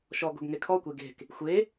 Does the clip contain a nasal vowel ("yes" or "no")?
no